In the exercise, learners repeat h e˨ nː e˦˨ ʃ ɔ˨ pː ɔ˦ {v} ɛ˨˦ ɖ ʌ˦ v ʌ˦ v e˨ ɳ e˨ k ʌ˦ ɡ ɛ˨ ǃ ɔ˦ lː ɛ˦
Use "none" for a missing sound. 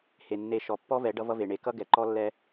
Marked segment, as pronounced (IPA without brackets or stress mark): v